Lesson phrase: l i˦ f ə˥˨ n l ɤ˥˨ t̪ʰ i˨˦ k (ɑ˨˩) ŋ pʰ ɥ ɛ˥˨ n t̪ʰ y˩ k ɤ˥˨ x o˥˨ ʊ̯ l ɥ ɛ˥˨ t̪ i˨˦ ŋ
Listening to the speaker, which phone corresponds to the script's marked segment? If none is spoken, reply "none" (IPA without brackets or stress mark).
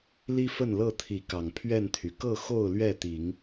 ɑ˨˩